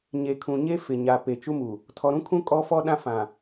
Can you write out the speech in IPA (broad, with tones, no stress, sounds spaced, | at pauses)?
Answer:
ɲ e˨ kʰ ũ˨ ɲ e˦ f ɪ˨ ɲ a˨ p e˨ t͡ʃ u˦ m u˨ | tʰ ɔ˨ ɾ ũ˦ kʰ ũ˦ kʼ ɔ˦ f ɔ˦ ɗ ã˦ f ã˨